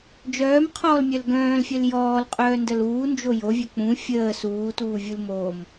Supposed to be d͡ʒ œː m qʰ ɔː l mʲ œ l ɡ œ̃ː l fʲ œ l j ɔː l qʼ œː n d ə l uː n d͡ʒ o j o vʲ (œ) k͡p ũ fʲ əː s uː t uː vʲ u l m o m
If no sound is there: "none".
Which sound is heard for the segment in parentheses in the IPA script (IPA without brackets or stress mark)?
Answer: œ